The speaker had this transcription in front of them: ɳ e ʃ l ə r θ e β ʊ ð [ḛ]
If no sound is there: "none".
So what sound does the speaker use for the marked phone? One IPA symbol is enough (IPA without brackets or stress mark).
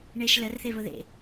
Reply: ḛ